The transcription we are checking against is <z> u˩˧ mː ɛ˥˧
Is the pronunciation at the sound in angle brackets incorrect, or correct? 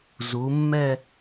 correct